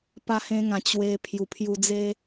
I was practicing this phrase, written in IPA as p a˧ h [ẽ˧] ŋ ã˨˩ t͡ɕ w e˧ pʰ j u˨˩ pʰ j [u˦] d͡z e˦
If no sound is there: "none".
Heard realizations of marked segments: ẽ˧, u˧

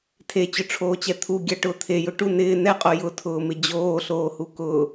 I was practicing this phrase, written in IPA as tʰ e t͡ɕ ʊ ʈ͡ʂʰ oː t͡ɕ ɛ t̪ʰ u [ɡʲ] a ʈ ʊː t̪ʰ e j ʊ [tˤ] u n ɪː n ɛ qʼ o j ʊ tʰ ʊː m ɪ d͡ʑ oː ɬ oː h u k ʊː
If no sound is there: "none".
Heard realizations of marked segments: ɡʲ, ʈ

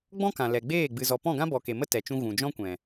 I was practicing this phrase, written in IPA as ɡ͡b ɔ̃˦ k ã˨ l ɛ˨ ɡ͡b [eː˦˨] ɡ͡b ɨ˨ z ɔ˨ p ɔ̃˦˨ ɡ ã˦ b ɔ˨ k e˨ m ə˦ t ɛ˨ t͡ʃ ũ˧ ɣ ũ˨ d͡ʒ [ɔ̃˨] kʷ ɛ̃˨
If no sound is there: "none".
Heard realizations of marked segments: eː˦˨, ɔ̃˦

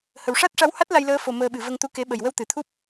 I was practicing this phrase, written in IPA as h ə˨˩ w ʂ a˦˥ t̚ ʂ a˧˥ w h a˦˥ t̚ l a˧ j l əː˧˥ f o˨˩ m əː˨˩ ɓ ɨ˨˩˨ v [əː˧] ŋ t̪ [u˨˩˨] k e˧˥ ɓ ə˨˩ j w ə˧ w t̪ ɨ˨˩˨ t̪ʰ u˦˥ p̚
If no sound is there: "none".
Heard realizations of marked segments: ə˧, u˧

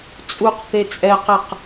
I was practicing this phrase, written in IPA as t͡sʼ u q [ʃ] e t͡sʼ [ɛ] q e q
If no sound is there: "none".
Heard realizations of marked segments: θ, ɛ

